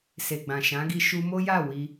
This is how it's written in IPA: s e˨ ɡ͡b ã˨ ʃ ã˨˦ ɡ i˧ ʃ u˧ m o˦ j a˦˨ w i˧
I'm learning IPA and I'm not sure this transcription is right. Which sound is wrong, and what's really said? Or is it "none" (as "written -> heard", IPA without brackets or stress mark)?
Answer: none